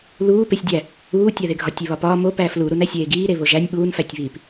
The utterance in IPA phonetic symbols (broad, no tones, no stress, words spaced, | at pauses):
luː pesʲdʲæ | uːtʲæðeɡʱɒ tʲeβɒpɒː mo pæːfluɾun æsʲeːɡiːɾe βoʒænʲ ɓuːnfætʲβiːp